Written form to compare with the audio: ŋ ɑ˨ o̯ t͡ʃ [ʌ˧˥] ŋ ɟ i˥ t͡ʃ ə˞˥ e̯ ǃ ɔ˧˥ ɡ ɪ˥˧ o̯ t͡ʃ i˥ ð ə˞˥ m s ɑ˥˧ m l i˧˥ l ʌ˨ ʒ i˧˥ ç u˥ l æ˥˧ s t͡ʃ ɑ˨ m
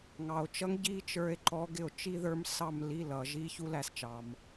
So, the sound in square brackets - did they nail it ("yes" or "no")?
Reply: yes